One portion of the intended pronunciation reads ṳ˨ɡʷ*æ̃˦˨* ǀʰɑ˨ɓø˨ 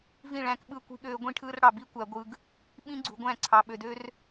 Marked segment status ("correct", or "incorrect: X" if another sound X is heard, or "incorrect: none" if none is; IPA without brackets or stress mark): correct